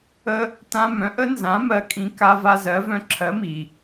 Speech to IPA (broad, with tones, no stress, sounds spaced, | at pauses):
ə˦ | t ã˦ m œ̃˨˥ ʔ ə˨˥ n z ã˨˥ m ɜ˨˥ kʼ ĩ˨˥ k a˦ v a˦ z ɜ˨˥ v œ̃˦ ǁʰ ɜ˨˥ m i˩